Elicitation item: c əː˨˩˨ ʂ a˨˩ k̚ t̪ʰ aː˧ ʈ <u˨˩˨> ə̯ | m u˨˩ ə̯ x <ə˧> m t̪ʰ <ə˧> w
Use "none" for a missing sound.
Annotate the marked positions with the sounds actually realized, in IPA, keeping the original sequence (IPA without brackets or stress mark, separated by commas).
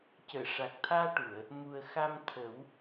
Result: u˨˩˨, a˧, ə˨˩˦